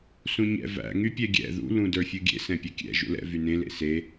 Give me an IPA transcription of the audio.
sũɲɛ̰ væ̰ ŋypʲɛɡʲɛ̰ ðṵ lũdə˞fʲuɡʲḛ sɛ̃pʲʌkʲɛ̰ ʒṵlɛ̰ vynẽ lḛse

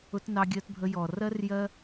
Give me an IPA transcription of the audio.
ʊ˧tnɑ˧ɡʲɜ˧tbʱə˧ jɔ˨ rɜ˦rjɜ˦

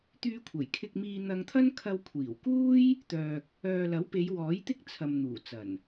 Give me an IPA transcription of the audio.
t̪yː˧kʷʰɐ˨˩jkʰɪ˧k̚miː˧ n̪ɐ˧ŋt̪ʰɐ˥n kʰɐ˧wkʷʰiː˨˩wkuː˥j | t̪œː˧k̚ | œː˨lɐ˨˥wpe˨˧j wɔː˨˥jt̪ɪ˥k̚ t͡sʰɐ˨mn̪uː˨˩t͡sɐ˨˩n

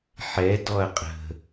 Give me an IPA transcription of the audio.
ħɛ dɔɐ̯qʼə̤

